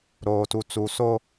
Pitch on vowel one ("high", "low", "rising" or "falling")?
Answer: low